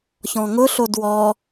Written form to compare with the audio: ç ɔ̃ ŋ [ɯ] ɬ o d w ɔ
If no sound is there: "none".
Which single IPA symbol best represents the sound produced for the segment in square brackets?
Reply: ʊ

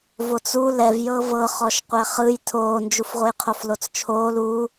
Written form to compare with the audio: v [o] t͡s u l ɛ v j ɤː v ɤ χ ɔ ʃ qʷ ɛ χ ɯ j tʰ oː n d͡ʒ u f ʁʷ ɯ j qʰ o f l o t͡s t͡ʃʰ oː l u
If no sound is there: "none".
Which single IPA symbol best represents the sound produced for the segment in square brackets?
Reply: o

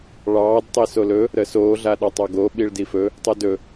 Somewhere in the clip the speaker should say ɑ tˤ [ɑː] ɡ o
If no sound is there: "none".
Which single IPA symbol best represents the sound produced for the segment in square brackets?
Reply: ɑ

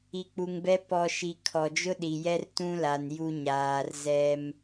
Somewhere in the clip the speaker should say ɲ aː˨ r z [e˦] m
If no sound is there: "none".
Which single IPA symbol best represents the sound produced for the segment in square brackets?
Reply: ɛ˦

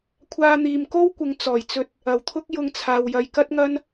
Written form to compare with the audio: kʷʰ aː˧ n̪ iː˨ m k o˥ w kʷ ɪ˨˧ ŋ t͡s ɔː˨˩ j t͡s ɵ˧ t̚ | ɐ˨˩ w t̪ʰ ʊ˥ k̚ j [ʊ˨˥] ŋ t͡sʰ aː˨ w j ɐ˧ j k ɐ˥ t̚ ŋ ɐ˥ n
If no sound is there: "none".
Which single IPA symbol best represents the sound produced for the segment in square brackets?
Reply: ʊ˧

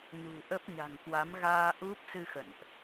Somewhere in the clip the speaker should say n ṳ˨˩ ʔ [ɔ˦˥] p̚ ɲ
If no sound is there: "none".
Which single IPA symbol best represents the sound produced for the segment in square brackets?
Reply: ə˦˥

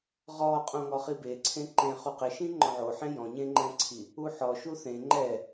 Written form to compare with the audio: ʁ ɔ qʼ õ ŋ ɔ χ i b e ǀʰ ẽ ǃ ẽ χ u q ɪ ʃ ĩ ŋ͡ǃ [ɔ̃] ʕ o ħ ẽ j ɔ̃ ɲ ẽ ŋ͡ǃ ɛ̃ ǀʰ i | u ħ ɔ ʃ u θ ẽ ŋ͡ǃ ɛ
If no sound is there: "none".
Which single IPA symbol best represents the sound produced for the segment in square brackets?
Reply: ɔ̃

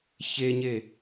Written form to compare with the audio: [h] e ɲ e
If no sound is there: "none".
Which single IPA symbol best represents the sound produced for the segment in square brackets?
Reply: ç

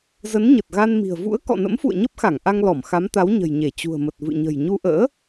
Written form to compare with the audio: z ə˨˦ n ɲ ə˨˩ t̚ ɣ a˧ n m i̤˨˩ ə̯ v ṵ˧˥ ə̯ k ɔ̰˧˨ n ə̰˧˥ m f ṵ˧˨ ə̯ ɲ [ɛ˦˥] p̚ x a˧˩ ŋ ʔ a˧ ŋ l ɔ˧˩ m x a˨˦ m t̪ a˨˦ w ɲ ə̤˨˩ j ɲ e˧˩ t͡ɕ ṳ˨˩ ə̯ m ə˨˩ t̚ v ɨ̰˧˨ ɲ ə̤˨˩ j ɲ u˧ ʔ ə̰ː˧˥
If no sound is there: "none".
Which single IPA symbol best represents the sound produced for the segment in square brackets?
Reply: ə˦˥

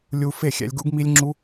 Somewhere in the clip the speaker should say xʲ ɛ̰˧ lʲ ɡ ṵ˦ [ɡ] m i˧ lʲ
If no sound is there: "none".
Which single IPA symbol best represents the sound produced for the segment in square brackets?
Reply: ɡ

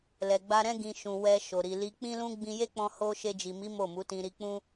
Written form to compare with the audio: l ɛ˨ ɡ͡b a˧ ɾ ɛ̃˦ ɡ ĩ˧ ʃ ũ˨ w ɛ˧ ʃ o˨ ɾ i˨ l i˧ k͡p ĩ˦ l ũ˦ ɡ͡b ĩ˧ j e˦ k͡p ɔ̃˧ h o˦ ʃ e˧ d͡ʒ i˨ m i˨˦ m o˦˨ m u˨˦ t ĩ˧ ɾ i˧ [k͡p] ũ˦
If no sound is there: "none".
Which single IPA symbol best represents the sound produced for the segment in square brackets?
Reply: k͡p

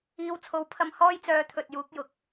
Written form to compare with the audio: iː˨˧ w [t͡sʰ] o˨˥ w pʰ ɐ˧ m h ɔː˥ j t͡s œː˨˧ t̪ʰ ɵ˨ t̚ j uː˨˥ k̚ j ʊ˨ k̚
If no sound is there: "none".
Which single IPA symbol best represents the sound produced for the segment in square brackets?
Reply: t͡sʰ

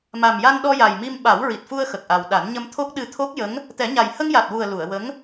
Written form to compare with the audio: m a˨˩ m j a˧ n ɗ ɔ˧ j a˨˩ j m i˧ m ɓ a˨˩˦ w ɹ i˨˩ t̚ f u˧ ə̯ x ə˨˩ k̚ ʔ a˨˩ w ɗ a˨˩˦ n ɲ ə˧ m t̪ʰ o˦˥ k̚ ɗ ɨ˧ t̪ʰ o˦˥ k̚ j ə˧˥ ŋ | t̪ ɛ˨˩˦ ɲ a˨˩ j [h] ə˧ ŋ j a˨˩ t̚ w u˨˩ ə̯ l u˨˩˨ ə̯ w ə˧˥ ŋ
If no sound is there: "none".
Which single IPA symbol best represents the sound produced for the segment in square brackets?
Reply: h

